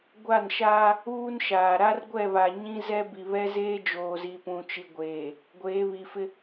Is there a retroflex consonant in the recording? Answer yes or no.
no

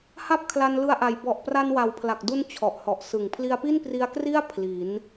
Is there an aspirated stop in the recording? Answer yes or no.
yes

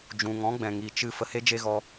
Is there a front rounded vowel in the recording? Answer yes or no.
no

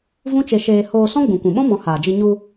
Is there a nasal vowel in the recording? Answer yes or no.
yes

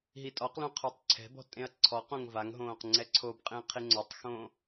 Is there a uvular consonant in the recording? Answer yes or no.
yes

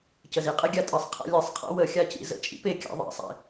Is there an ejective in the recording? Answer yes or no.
yes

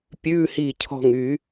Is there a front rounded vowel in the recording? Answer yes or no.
yes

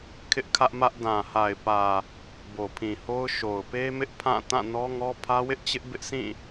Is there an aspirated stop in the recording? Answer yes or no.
yes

